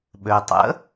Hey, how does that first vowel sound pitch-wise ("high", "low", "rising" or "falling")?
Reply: low